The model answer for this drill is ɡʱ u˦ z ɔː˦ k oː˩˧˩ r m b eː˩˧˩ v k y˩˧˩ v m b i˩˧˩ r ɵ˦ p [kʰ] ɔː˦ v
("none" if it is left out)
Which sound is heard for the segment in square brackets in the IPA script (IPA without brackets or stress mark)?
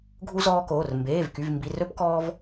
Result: k